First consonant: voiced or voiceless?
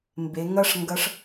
voiced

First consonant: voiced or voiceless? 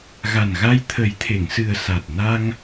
voiced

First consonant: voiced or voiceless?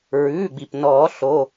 voiced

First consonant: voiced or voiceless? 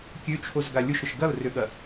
voiceless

